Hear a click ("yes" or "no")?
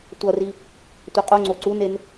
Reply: yes